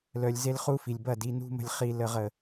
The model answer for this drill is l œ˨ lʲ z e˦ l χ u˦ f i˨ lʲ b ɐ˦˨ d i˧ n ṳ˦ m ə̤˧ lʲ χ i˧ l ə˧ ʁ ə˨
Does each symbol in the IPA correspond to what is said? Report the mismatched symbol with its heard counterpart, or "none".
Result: none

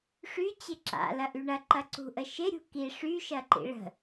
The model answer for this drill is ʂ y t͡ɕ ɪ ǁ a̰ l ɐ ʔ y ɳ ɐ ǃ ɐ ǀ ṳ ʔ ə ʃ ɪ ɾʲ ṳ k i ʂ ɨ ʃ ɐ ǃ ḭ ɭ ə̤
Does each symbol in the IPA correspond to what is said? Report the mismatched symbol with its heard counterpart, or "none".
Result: ɨ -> y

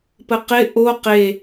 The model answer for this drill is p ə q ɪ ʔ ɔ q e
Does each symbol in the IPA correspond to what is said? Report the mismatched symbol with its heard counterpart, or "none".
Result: ɔ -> o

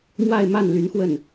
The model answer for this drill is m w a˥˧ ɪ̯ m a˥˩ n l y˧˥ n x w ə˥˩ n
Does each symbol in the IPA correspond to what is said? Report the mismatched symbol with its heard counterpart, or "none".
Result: none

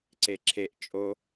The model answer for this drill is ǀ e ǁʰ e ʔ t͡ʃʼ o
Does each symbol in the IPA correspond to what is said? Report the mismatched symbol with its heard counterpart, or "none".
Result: none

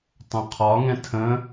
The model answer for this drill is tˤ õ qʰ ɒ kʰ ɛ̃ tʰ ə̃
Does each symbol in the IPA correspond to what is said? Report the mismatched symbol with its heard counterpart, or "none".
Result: kʰ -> ŋ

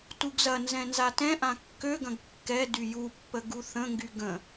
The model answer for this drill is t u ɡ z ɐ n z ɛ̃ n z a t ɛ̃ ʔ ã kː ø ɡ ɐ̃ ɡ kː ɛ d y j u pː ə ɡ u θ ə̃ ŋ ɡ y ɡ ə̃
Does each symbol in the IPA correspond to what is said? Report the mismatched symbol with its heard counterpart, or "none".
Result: none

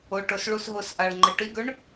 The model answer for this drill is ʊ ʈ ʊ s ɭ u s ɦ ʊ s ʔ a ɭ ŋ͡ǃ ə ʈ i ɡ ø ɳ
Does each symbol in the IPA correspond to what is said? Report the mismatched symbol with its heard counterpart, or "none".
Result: none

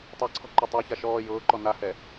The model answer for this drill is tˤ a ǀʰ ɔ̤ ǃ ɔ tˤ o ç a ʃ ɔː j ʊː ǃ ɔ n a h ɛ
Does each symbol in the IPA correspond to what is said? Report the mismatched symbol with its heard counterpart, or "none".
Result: none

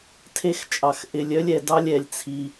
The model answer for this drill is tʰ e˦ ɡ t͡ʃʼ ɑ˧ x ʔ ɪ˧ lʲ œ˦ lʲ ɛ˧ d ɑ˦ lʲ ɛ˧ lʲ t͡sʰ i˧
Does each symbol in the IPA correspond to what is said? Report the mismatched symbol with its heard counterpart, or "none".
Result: ɡ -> x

